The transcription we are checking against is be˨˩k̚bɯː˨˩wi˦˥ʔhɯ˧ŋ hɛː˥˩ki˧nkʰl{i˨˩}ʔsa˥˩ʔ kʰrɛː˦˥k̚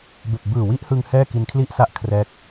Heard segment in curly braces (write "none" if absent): i˥˩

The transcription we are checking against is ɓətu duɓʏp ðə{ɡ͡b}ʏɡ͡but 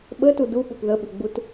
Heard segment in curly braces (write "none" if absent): ɓ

